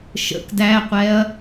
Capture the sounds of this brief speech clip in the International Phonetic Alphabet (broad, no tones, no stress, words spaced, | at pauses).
ʃə̰k dæqʷɛɐ̯